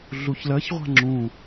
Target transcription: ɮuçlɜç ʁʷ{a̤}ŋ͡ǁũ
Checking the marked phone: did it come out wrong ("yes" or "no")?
no